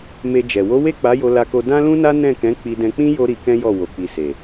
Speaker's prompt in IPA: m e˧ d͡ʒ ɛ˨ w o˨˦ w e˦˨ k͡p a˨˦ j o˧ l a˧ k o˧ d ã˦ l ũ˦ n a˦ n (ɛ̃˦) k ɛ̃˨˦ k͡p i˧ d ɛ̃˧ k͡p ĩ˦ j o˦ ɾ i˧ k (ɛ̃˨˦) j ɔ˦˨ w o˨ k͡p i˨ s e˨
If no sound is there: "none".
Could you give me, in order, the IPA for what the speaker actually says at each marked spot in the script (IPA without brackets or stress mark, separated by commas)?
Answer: ɛ̃˦˨, ɛ̃˦